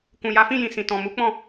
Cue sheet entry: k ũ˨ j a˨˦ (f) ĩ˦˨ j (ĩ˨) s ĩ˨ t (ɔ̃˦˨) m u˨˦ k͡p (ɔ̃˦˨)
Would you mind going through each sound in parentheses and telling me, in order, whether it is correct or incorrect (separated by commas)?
correct, correct, incorrect, correct